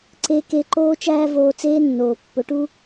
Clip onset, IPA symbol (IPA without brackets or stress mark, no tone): ǀ